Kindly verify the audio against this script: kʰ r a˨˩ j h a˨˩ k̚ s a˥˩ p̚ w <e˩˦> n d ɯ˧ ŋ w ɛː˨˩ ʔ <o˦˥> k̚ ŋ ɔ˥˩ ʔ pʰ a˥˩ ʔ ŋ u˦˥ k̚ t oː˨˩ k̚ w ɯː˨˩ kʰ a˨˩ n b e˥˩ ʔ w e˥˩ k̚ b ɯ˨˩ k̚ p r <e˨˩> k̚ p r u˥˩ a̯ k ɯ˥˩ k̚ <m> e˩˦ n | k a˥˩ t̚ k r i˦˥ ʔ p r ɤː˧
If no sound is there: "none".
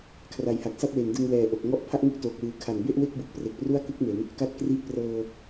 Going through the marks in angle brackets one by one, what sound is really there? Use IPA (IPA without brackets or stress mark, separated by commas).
e˩˦, o˨˩, e˨˩, m